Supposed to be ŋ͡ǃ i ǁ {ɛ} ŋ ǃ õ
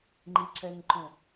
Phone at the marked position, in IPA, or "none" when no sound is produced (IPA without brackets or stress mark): ɛ